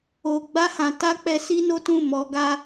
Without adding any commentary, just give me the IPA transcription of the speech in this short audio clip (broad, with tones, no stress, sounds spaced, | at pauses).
o˨ ɡ͡b a˧ h ã˨ t a˧ k͡p ɛ˧ s i˦ n o˦ t ũ˦˨ m ɔ˧ ɡ a˦